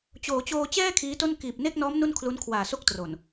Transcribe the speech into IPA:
t͡ɕ oː˩˦ t͡ɕ oː˧ t͡ɕ ɛː˥˩ kʰ iː˦˥ t o˥˩ n k iː˨˩ p̚ n e˥˩ k̚ n ɔː˦˥ m n u˥˩ n kʰ l u˦˥ n kʰ w aː˨˩ s o˥˩ k̚ t r o˨˩ n

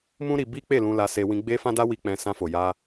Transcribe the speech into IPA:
m ũ˦ ɾ i˧ b i˦ k͡p e˦˨ l ũ˧ l a˧ s e˧ w ĩ˧ ɡ͡b e˦ f ã˦ d a˦ w i˧ k͡p ɛ̃˧ s ã˧ f o˨ j a˧

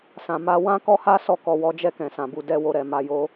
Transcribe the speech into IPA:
s ã˨ m a˧ w ã˦ k ɔ˦ h a˦ s ɔ˦˨ k ɔ˨ w ɔ˨˦ d͡ʒ ɛ˦˨ k ɛ̃˨ s ã˨ b u˨ d ɛ˧ w o˧ ɾ ɛ˨ m a˧ j o˦

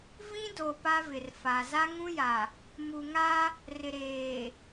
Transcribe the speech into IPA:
v ĩ˦ d o˨ p a˦ v ɪ˨ r f a˨ z a˦ ŋ ũ˦ j a˨ | m u˨ ŋ a˦ | r ɪ˨ ɾ eː˨

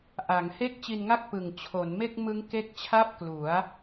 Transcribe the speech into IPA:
ʔ a˩˦ ŋ h e˥˩ k̚ t͡ɕ i˧ n ŋ a˥˩ k̚ p ɯ˨˩ ŋ t͡ɕʰ o˩˦ n m e˥˩ k̚ m ɯ˦˥ ŋ k e˦˥ k̚ t͡ɕʰ a˥˩ p̚ k l u˩˦ a̯

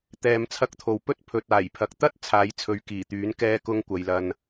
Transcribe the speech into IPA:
t̪ ɛː˧ m t͡sʰ ɐ˥ k̚ t̪ʰ o˨ w p ɵ˥ t̚ pʰ ɵ˨ t̚ aː˨˩ j pʰ ɐ˨˥ k̚ t̪ ɐ˥ t̚ t͡sʰ aː˨˥ j t͡sʰ ɵ˨˧ ɥ k iː˨˩ t̪ yː˨˥ n k ɛː˥ k ʊ˥ ŋ kʷ ɐ˨˧ j l ɐ˧ n

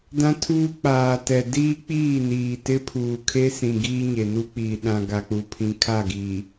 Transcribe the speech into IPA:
d ã˦ tʰ uː˦ k͡p aː˨ t ɛ˨ d iː˦ k͡p iː˦˨ n iː˨ t ɪ˦ pʰ uː˨ kʰ e˦ s ĩ˨ ɡ iː˦ ɲ e˨ n u˦ k͡p iː˨ ɗ ã˨ ɡ a˨ k͡p u˨ pʰ ĩ˨ kʰ a˦˨ ɡ iː˨

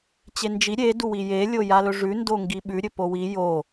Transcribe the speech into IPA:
t͡ɕ e n d͡ʒ i ɾʲ e d u w i j e lʲ o j a l ɵ ʐ ʉ n d o ŋ ɡ i ɓ ʉ ɾʲ ɵ p o w i j o

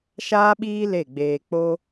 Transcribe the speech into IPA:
ʃ aː˦ ɓ iː˦ l e˦˨ ɡ͡b eː˧ k͡p o˦

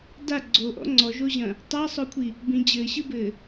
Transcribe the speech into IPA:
d a ɡ͡ǀ o ʔ ɔ̰ ŋ͡ǀ ɔ ʒ o ʑ ɐ̃ | tˤ a sˤ o kʷʰ i | b ĩ d͡ʑ ɘː ɕ ɨ b ɘː

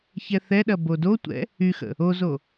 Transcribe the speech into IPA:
ç ɛ θ ɛ ɗ ɐ b o d o tʷ ɛ̰ | y x ə̰ | o z o

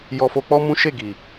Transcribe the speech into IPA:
j ɔ˧ f o˧ k͡p ɔ˦ m ũ˦ ʃ e˦˨ ɡ i˨

